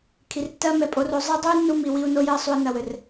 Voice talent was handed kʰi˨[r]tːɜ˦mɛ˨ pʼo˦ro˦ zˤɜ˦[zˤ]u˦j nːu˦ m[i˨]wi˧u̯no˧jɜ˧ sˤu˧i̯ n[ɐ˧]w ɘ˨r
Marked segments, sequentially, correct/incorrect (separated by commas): correct, incorrect, correct, correct